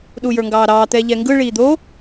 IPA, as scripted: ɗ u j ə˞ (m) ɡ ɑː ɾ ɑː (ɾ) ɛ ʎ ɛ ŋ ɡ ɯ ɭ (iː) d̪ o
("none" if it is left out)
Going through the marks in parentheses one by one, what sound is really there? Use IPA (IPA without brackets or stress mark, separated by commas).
ŋ, t̪, iː